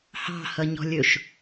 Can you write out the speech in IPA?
h ɑ̤ h ʌ ɲ ɔ̤ lʲ ɵ ʃ

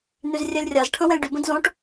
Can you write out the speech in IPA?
n y z rʲ ɛ lʲ rʲ a z ʈʰ ə̃ w ɛ̃ lʲ ɖ y b ə̃ d z õ ʈ

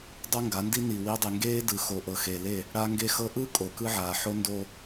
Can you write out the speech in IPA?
dˤ o˦ ŋ ɡ a˨˦ n d i˦ n i˨ w i˦ dˤ e˨ ŋ ɡ eː˦ d ɯ˨ x o˨ ʔ ɤ˨ x e˨ l e˦˨ | ɽ a˦ ŋ ɡ e˦ x ɤ˦ ʔ ɯ˦ kʼ o˨ k ɯ˦ ʕ aː˨ ħ o˦ n d o˦

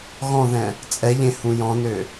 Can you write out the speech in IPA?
ɣ ɔ̃ ð ɛ̃ | t͡sʼ ɛ ʎ ẽ h ũ j ɔ̃ n ø

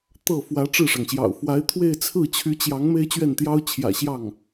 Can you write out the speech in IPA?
t̪ ɤ˥˩ f w ä˧˥ ʈ͡ʂ ɻ̩˥˩ ʂ ɑ˩ ŋ ɕ j ɑ̰˨˩ ʊ̯ f w a˧˥ ɪ̯ t̪ʰ w e˥˧ ɪ̯ t͡sʰ ɹ̩˥˩ t͡ɕʰ y˧˥ t͡ɕ j ɑ˧˥ ŋ m e˥ ɪ̯ t͡ɕ ɥ ɛ˥˩ n t̪ j ɑ˥ ʊ̯ t͡ɕʰ j ä̰˨˩ ɕ j ɑ˥˩ ŋ

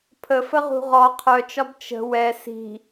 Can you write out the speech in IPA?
pʰ ə f ə ʁ ṳ ʁ ɔ qʰ œ t͡ʃ ɒ b t͡ʃ ə̤ w ɛ s i̤

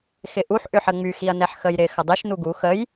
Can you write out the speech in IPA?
x ɪ ʔ u ħ ʔ ʏ ħ ə ŋ͡m y x i ɐ̯ n ɛ ħ x ə j ɾ ɪ x ə dˤ i ʃ n u ɡ u x ə j

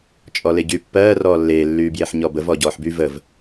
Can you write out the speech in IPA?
t͡ʃʼ ɔ l e ɟ yː pː ɜː r ɔː lː eː lː yː b j e ħ ɲ ɔ b ə v ɔ ɟ ɔː ħ b y v ə v

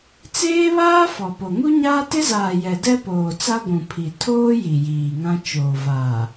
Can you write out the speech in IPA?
t͡s eː˦ β aː˦ f ɔ˨ p o˨ ŋ u˦ ɲ aː˦ t ɪ˦ z aː˨ j ɛ˨ d ɛ˦ p oː˨ t͡s a˦ ɡʷ ũ˨ pʰ i˨ tʰ oː˦ j i˨ j iː˨ ŋ ã˦ t͡ʃ oː˨ v aː˨

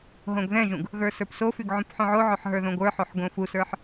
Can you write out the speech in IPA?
ɦ õ ɡ ð ɛ̃ ʒ ũ ɡ | ɣ ə˞ s ə˞ p s o f y ɡ ʕ ũ p ħ õ ʕ o ʕ o ħ ɦ ə˞ ð õ ɡʷ ə˞ ħ o ħ ɡ õ f u s ə˞ ħ

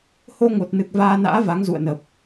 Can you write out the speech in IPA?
h o˧ ŋ o˨˩ t̚ n ɨ˨˩ k̚ v aː˧ n a̰ː˧˥ v a˨˦ ŋ z ṵ˧˨ ə̯ n ə˨˩ p̚

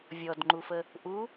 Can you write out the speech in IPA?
vʲ ɔ d ŋ͡ǃ u f ə | ʔ u

